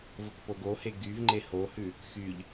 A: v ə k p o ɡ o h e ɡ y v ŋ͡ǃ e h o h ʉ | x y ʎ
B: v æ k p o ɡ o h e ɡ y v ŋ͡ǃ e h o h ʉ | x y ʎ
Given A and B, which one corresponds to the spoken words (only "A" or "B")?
A